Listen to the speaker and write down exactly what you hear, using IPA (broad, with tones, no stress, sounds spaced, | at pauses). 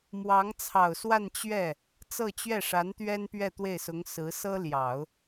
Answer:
m w ɑ˧˥ ŋ t͡sʰ ɑ˨˩ ʊ̯ s w a˥˧ n t͡ɕ ɥ ɛ˥˩ | t͡s ɤ˥˧ t͡ɕ ɥ ɛ˥˩ ʂ a˧˥ n t̪ ɥ ɛ˥ n p ɥ ɛ˥˧ t̪ w e˥˩ ɪ̯ s ʊ˧˥ ŋ s ɹ̩˧˥ s ɤ˥ l j ɑ˨˩˦ ʊ̯